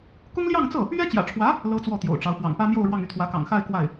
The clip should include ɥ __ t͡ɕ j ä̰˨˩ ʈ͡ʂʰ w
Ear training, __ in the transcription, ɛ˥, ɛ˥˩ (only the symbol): ɛ˥